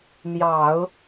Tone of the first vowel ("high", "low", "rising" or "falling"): low